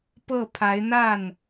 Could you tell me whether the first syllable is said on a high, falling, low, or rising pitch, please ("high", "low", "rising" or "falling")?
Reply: falling